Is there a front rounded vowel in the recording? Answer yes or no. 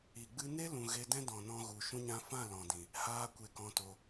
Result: no